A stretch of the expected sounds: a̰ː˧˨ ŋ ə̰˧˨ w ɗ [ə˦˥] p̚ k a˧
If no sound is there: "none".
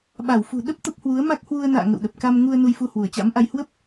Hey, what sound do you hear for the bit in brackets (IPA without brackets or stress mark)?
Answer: ə˨˩